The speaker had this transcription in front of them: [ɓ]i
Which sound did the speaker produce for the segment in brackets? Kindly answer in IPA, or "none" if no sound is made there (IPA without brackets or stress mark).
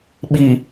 ɓ